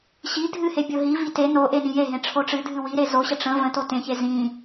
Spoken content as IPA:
ɕ i dʱ ɨ h e bʲ o ɦ i v i t e n o ʔ e n ĩ j e ɦ ẽ ʈ͡ʂʰ o ʈ͡ʂ ɨ dʱ ɨ w i ɾ e z o ɕ ə ʈ͡ʂ ə̃ v ə̃ t o t ẽ ç e z ĩ

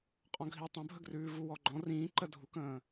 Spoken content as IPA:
qʼ ɔ̃ ɡʱ i tˤ ə̃ bʱ ə ɡ r ʉː v u w ɔ ɡ͡ǃ ɔ̃ r ĩː ǃ ə dʱ u k ə̃ː

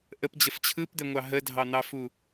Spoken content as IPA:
ʔ ə p d͡ʑ ə f t͡ɕʰ ɯ p d̪ ɛ ŋʷ ɑ ɦ ə dʱ ɑ n̪ ɑ f u

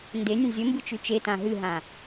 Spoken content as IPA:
n d e nʲ ə̃ zʲ ə m b ɨ t͡ʃ ʉ t͡ʃ e t ã ɦ ɨ ɦ ã

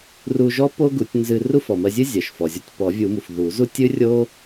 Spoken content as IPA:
r u˧ ʒ ɔ˥ p o˥ ɡ u˨˩˦ tʲ n z ɨ˧ r u˥ f ɔ˩ m ɜ˧ zʲ ɨ˥ zʲ ɜ˩ ʃ f ɔ˩ zʲ ɔ˧ tʲ p ɔ˨˩˦ vʲ u˨˩˦ m u˩ f ð u˨˩˦ z u˥ tʲ ɨ˥ rʲ o˥

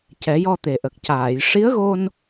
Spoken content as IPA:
c ɛ˨˩˦ j ɔ˧ t̪ e˨˩ ʔ ə˨˩ k̚ c aː˨˩˨ j ʂ i˧˥ ə̯ ɣ o˧ n

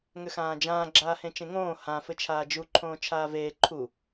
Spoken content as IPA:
ŋ ʏ x ãː d͡ʒ ãː ɡ͡ǁ aː h ẽ t͡ʃ ẽ ŋ õː h ã f ɘ t͡ʃʰ aː d͡ʒ u ǃʰ õː t͡ʃʰ aː v eː ǃʰ u

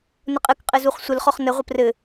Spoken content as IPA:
n ə qʼ ɘ k qʼ ɘ z u χ sʷ ə l χ ɔ χ n ə ʁʷ ə p r ɘ

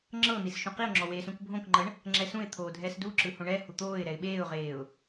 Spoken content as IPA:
ŋ͡ǁ ɤ n̪ i s ʃ ũ q i ʊ̯ ŋ͡ǁ ɔ w eː s ũ k bʱ õ k ŋ͡ǃ ɤ ɳ | ŋ͡ǁ ɛ s ũ ɪ̯ t̪ʰ oː dʱ ɛː s d u ǁ ɯ h õ ɳ ɛ h u t̪ oː ɪ̯ ɾ ɛ ɪ̯ ɓ eː ʊ̯ ʁ eː ʊ̯

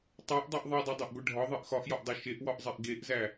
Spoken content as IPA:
tˤ o ʔ dˤ u ʔ ðˤ i dˤ o dˤ e ʔ ɡʷ i ɖʱ ɒ ðˤ i ʔ x ɒ ʔ j ɒ ʔ dˤ o ʃ e ʔ w ɒ ʔ zˤ e ʔ ɡ e ʔ z æ

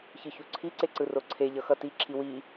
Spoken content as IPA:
ç ɯ ç u ǀʰ i ǀ e ǀ ɯ r o ǀʰ e ʎ ʌ x ʌ t i ǁʰ i w i

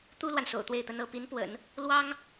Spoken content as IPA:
t̪ u˥ l w a˨ n s o̰˨˩ ʊ̯ t̪ w e˥˩ ɪ̯ t̪ ə˥ n ɤ˥ p i˧˥ n p w ə̰˨˩˦ n | l w ɑ˥ ŋ

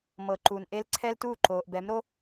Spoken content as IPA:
m ɤ˨ ǃ uː˨ n ʔ e˦ l ǀʰ ɛ˦ l t uː˦˨ ǃ oː˨ ʔ b ɛ˨˦ m ɾ o˦

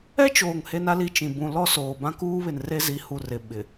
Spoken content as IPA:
ɛ˦ t͡ʃ oː˨ ŋ h e˦ n a˦ l i˦ t͡ʃ ĩ˨ b ũ˨ l ɔ˦ s oː˨ b ã˦ k uː˦ β ɪ˨ n r e˦ z i˨˦ h u˨ r ɪ˨ ɓ ɪ˨

